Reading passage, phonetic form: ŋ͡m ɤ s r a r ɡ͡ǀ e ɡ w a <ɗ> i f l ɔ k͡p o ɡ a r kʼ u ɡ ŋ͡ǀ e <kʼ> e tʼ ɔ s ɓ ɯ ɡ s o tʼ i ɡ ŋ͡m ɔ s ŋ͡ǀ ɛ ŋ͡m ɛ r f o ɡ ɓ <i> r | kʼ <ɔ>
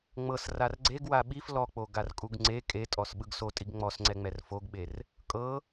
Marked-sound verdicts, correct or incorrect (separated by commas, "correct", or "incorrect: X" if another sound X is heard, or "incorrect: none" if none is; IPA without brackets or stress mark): incorrect: ɓ, correct, incorrect: e, incorrect: ɤ